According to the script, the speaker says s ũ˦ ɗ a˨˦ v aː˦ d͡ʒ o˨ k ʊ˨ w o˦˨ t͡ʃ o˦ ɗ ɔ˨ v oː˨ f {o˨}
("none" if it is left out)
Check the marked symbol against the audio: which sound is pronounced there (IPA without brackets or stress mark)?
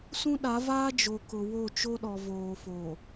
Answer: o˨